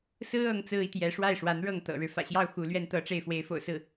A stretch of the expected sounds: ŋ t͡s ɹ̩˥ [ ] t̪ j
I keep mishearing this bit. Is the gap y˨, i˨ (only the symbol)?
i˨